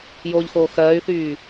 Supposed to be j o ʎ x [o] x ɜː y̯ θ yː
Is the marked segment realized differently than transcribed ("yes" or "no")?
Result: yes